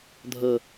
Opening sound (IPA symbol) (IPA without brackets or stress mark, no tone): dʱ